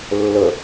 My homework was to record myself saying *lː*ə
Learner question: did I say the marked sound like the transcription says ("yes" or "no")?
yes